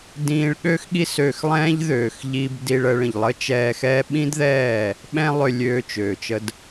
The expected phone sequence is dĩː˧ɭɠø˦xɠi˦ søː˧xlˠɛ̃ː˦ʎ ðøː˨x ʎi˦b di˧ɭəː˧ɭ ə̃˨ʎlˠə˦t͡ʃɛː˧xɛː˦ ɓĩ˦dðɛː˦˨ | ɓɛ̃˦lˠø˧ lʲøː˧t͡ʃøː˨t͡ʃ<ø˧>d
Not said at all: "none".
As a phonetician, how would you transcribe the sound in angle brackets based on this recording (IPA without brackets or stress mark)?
ə˧